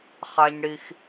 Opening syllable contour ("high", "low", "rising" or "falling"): high